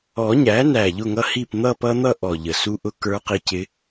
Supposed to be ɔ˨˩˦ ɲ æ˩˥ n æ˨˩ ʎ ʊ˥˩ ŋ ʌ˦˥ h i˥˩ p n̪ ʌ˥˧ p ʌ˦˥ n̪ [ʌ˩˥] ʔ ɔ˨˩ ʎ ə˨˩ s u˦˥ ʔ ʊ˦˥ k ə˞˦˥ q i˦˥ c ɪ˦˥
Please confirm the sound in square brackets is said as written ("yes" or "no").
no